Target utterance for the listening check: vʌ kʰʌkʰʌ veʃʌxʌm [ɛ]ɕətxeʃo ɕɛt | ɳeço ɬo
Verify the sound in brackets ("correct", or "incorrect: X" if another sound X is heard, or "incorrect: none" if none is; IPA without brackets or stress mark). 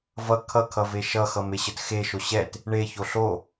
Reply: incorrect: e